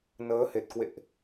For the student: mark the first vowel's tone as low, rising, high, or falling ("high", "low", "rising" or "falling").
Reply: rising